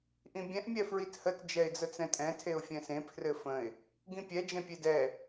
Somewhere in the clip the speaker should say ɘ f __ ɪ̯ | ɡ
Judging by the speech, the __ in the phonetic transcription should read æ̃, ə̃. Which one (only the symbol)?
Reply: ə̃